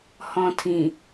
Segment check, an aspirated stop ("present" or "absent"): present